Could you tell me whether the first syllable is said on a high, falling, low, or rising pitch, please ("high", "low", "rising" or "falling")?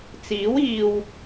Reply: rising